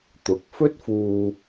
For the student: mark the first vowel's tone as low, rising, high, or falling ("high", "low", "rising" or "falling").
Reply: rising